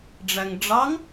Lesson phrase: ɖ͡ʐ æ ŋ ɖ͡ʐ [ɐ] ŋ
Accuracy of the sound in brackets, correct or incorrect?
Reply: incorrect